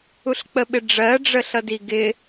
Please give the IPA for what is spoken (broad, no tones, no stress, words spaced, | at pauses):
uɬk͡pəɓɪɖ͡ʐɜ ɖ͡ʐəɬʌdiɡɪ